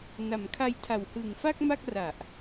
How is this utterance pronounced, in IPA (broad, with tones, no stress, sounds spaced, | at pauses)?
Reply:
n a˩˦ m kʰ a˧ j tʰ a˨˩ w h ɯ˨˩ ŋ f a˥˩ k̚ m a˥˩ k̚ r a˨˩ ʔ